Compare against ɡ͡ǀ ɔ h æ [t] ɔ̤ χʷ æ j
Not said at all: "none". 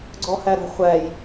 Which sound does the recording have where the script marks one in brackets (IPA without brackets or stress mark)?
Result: ɾ